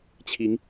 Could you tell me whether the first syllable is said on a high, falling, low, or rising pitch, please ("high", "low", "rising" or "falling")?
rising